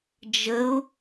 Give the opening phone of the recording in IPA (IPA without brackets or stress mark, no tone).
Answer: d͡ʒ